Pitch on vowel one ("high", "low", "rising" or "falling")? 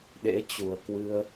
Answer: rising